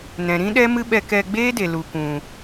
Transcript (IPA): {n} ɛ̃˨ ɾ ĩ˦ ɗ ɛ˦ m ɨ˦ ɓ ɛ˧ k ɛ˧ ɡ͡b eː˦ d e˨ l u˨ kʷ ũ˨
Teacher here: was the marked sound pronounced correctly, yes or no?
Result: yes